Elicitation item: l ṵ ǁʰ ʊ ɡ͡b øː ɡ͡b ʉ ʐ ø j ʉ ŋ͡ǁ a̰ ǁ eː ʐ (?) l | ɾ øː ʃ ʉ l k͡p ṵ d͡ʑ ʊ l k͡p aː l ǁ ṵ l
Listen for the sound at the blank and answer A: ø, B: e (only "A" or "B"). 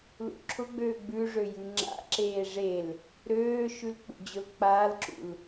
B